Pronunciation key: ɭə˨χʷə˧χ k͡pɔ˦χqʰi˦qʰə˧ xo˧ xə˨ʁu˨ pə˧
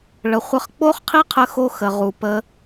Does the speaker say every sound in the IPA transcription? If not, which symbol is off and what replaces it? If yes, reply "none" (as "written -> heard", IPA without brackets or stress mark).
ɔ˦ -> o˦